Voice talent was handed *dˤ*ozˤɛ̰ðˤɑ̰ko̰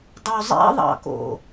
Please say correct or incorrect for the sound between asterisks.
correct